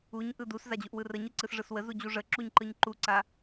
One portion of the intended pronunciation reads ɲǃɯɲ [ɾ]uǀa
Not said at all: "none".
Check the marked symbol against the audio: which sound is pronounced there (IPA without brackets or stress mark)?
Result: ǃ